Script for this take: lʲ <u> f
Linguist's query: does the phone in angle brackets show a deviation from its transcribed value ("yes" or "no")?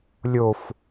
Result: yes